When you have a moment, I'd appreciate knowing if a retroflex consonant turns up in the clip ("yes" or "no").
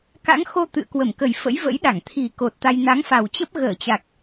no